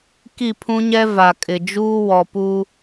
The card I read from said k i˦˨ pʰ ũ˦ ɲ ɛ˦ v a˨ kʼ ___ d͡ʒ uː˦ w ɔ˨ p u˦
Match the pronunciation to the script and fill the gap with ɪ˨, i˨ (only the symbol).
ɪ˨